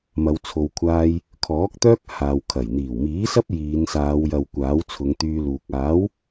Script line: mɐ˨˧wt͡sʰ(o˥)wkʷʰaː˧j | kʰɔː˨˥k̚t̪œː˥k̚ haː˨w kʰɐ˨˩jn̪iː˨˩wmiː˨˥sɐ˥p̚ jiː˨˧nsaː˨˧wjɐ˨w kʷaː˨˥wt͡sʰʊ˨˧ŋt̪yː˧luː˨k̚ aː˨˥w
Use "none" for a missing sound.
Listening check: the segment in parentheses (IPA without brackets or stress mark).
o˨